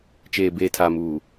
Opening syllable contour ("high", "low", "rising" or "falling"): low